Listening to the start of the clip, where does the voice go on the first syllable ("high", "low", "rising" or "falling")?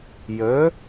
rising